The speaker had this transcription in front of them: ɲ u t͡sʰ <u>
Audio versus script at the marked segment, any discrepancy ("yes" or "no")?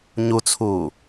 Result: yes